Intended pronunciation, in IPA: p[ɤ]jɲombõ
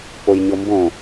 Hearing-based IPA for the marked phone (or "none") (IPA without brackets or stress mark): o